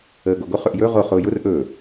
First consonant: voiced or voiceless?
voiced